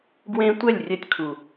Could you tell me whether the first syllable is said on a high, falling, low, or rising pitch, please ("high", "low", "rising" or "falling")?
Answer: high